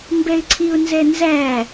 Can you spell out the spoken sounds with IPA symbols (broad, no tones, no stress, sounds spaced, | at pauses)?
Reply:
m b ɛ ɪ̯ ǀʰ i ʊ̯ n z ɛ n z æ